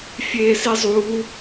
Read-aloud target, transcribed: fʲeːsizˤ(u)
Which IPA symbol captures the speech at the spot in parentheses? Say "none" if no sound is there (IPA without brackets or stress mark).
u